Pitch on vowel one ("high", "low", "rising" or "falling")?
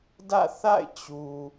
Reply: falling